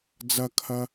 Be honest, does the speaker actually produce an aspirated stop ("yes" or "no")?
yes